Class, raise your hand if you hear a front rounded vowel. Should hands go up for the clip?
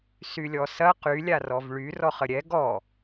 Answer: yes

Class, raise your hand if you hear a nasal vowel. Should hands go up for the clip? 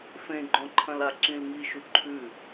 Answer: yes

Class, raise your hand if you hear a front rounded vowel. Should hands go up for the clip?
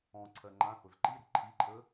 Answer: no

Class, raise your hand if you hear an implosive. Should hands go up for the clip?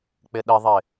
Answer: yes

